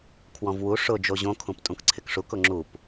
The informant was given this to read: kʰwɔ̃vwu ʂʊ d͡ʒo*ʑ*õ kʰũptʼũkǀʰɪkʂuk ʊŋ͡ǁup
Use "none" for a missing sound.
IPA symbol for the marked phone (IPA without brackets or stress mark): ʑ